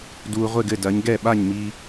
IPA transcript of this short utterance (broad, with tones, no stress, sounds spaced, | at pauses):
d uː˧ ʁʷ e˥˨ ɡ ɘ˥˨ d ɐ˨˥ ɲ ɡ ɛ˥˨ ɓ a˥˨ ɲ m i˧